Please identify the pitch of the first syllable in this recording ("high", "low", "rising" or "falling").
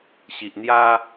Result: low